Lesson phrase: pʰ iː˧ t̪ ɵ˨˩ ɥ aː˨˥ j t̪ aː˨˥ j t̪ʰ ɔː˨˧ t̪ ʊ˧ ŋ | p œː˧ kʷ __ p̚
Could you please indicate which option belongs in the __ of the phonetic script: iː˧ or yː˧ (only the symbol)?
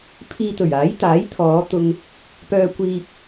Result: iː˧